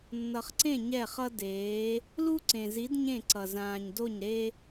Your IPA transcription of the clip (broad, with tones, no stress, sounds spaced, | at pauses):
nː ʌ˨ χ ǀ ẽ˦˨ ɲ ɛ˦˨ χ ʌ˦ d eː˨˦ | l u˦ ǀ ẽ˨ z i˨˦ d ɲ ẽ˦˨ ǀ ʌ˨ z ãː˨ ɲ d o˦˨ ɲ ɾ e˦